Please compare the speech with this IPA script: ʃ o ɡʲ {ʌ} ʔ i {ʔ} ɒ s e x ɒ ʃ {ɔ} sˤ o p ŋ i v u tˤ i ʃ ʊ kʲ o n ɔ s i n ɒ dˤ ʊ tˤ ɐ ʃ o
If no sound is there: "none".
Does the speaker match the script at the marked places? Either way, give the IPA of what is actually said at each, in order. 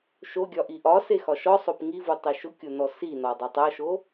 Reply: ɒ, ʔ, ɔ

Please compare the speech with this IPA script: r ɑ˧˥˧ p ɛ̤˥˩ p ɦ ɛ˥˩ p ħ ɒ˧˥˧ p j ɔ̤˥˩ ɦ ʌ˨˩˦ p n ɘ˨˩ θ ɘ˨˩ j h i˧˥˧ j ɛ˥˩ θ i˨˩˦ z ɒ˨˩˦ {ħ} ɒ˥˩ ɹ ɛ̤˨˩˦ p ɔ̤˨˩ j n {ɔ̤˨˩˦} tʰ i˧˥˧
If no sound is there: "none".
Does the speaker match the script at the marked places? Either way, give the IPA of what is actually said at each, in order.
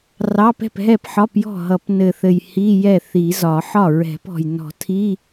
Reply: ħ, ɔ̤˨˩˦

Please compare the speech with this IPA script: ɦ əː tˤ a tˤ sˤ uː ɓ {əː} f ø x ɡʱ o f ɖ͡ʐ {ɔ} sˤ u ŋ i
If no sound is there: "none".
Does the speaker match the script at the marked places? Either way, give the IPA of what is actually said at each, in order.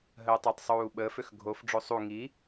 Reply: əː, o

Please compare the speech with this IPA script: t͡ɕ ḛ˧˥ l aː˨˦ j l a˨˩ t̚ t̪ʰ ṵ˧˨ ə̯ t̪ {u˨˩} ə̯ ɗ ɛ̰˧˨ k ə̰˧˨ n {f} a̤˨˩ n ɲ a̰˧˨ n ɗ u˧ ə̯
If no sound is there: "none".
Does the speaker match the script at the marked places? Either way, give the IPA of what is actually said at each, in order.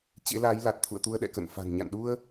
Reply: u˧, f

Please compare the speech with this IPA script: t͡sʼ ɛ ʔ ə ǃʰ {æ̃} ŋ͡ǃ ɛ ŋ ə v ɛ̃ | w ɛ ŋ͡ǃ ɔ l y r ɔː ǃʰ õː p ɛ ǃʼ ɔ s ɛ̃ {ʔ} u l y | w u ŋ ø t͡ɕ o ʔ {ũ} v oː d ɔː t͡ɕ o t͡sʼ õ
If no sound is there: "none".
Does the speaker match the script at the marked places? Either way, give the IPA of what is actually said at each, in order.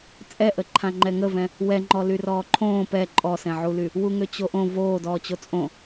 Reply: ã, ʕ, õ

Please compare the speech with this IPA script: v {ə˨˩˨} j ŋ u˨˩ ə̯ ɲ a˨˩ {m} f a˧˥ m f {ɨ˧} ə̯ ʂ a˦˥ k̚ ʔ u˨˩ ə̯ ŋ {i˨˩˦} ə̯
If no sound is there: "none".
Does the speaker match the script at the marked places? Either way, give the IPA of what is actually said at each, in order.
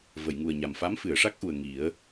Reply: ə˨˩˨, m, ɨ˨˩˨, i˨˩˦

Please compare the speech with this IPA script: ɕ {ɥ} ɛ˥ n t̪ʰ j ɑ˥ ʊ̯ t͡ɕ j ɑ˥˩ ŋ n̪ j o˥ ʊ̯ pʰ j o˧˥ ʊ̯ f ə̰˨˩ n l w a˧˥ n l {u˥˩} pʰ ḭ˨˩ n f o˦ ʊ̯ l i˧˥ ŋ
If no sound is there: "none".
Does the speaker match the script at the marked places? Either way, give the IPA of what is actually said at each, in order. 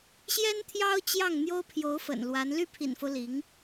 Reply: j, y˥˩

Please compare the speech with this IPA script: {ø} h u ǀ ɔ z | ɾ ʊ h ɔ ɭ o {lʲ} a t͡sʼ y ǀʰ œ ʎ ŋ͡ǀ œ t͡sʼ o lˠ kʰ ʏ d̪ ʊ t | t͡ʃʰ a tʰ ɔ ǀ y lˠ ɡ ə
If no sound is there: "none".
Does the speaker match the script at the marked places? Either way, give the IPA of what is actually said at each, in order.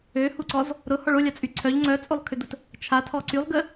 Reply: ø, lʲ

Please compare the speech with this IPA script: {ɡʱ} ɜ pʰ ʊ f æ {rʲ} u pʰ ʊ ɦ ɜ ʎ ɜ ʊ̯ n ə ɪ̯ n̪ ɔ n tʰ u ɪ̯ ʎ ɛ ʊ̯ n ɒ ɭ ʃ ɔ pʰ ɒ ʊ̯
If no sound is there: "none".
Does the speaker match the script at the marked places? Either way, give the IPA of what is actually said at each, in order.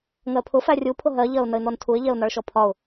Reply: ŋ, rʲ

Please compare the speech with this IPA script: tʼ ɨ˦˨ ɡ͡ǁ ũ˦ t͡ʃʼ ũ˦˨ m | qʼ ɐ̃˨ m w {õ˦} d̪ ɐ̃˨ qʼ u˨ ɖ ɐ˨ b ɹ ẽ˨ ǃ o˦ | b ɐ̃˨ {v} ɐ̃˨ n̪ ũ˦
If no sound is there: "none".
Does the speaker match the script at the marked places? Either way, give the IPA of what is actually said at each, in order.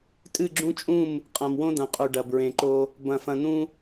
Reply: õ˦, f

